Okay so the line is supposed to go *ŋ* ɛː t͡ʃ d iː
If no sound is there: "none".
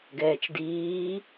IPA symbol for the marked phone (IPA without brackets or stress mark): ɡ